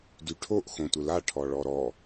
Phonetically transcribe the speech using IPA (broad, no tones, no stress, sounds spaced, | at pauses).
d y ʈʰ o ʔ x õ tʷ ɪ l a ʈʰ ɔ ɭ ɔ ɾ ɔ